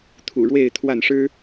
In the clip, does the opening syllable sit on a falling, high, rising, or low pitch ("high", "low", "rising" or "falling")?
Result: low